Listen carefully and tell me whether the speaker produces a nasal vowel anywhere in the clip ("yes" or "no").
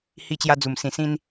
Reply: yes